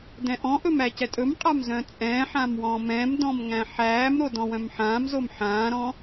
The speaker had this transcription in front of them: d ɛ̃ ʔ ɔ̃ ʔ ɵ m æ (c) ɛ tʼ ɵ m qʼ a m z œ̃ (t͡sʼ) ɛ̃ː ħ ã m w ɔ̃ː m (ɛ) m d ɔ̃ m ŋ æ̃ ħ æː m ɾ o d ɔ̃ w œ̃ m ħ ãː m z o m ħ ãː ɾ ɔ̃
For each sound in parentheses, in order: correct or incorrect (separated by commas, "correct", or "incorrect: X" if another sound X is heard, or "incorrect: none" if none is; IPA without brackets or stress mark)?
correct, correct, incorrect: ɛ̃